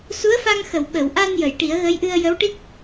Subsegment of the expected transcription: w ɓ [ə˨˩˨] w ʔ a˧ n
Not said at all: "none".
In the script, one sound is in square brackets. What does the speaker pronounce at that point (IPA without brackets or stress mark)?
ə˨˩˨